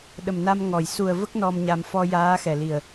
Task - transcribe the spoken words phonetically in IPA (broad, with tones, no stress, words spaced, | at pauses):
ɗə˨˩mna˧mŋɔ˨˩˨j su˨˩ə̯və˦˥k̚ nɔ˧mɲa˧m fɔ˧jaː˧˥xɛ˨˩li˨˩ə̯